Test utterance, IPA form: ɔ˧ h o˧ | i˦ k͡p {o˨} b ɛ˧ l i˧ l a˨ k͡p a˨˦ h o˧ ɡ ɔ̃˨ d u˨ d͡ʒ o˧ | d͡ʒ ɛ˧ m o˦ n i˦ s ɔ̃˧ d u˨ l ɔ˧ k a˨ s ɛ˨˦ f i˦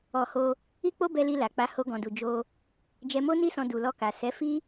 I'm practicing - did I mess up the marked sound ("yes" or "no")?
yes